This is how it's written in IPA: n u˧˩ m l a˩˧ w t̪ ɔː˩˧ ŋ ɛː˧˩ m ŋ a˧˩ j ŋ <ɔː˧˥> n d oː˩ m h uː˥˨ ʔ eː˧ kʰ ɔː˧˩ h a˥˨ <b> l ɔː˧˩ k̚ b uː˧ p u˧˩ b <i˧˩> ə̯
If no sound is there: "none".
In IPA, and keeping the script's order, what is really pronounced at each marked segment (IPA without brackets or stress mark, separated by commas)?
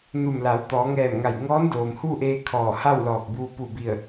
ɔː˧˥, w, i˧˩